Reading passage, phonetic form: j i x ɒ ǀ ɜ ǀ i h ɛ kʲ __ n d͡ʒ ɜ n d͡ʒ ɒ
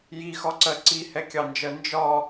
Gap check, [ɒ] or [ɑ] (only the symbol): ɑ